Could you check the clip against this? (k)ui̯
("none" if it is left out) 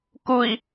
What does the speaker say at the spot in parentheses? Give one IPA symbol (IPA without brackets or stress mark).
k